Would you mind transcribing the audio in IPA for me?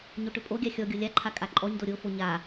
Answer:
ɲoʈʏpʼoɡʲa xʲɔɡʲo lʲaǃʰa kʼaǃʼɔɲdo ɾʲofo ɲa

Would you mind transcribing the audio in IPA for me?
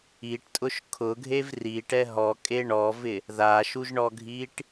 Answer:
iʈtʼʊʃ kʰʊɡʱev riʈɛ ɦɔkʼe ɳɔvɪ | ðaʃuʒɳɔɡʱiʈ

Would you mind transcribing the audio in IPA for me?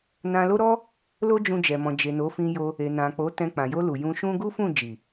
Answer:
nã˧lo˦ɾɔ˦ | lo˦d͡ʒũ˧d͡ʒɛ˨ mɔ̃˨d͡ʒe˨ no˨˦fĩ˧jo˧ | e˨nã˨ k͡po˨˦tɛ̃˧ k͡pã˨jo˧lu˨ jũ˧ʃũ˦ ɡu˦fũ˦˨ d͡ʒi˨

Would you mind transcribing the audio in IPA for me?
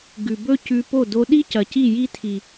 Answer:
ɡʉ˨bɵ˦ cʉ˧po˦˨ do˧ɗi˦cɐ˨ ci˦˨ji˦tʰi˨

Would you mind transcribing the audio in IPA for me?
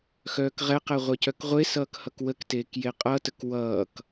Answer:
xœːkʁɛqɛ ʁʷɛcœkʁʷesʌːk hʌkwəkteːk jeqʼʌtək wʌːk

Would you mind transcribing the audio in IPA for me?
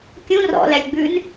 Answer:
kʲũ rɔ̰lælʲɡ͡bʉn

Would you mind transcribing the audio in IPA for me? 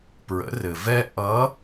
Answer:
pɹə̰˩˧rɘ˩ vɛ˧ ʔʌ˧˥

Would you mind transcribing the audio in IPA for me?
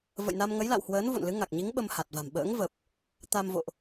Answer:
və̰˧˨jna˧mŋə˨˦j la̰˧˨whwəː˨˦n vo̰˧˨nlɨ˨˦ŋa˨˩k̚ɲi˨˦ŋ ɓə˧mha˨˩t̚va̤˨˩m ɓə̰ː˧˥ŋvə˨˩p̚ | t̪a˧m vo̰˧˨ʔ

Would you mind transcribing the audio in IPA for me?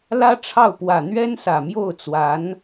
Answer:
lä˥ʈ͡ʂʰɑ˥˩ʊ̯ pwä˨˩n̪ɥɛ˥nsä˨˩ mjo˥˩ʊ̯t͡swa˧˥n

